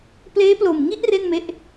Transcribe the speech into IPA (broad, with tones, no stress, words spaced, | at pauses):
pleː˦˥plo˨˩mŋi˥˩ʔ re˥˩nme˦˥ʔ